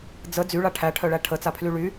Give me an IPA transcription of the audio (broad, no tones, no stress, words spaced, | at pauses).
d͡zə d͡zyɭa ʈʰæʈʰœɭæ ʈʰət͡sapʰly ɭy